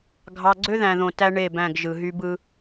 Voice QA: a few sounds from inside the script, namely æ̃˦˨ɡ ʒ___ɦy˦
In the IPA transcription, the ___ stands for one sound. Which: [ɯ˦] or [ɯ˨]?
ɯ˨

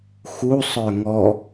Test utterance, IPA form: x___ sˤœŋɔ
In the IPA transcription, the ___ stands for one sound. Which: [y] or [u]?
u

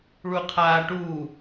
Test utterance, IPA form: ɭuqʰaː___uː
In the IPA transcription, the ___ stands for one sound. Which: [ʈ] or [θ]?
ʈ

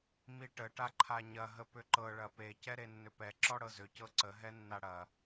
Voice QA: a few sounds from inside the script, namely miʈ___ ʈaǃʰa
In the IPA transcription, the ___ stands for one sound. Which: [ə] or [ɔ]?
ə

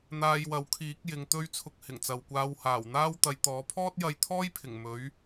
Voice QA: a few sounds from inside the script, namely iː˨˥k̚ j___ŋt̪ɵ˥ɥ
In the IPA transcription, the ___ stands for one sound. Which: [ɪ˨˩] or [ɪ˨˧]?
ɪ˨˧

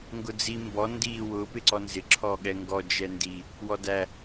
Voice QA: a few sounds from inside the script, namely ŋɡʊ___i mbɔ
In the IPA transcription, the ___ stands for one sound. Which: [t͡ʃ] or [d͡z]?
d͡z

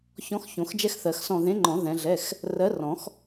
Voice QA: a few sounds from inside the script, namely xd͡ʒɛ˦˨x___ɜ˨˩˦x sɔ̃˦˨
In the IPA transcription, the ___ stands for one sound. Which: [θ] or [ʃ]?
θ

